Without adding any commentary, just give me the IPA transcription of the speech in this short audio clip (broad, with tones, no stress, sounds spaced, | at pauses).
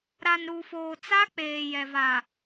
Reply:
ɾ a˨ n ɾ u˨ f oː˨ t͡s a˦ k͡p eː˨ j ɛ˨ v a˨